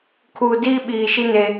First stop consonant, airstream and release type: aspirated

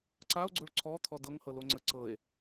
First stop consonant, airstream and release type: click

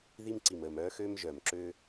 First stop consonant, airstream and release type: click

